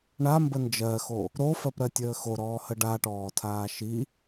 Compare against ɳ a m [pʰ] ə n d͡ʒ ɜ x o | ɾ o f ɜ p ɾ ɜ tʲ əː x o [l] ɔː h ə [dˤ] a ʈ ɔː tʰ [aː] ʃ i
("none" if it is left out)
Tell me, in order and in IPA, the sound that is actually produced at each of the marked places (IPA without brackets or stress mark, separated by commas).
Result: b, ɾ, ɖ, aː